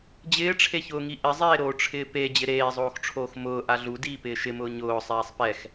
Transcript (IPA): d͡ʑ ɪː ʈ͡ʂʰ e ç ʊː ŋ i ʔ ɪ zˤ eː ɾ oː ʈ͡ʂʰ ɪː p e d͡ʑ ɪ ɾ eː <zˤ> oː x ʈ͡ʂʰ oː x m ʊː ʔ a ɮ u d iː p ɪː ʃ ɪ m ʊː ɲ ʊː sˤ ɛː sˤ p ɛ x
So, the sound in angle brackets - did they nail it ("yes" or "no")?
yes